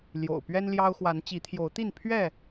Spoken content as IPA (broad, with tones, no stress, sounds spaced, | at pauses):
l j o̰˨˩ ʊ̯ p ɥ ɛ˦ n l j ɑ˦ ʊ̯ x w a˨˦ n t͡ɕ i˨˦ t̪ʰ j o˨˦ ʊ̯ t̪ i˥˨ n pʰ ɥ ɛ˥˨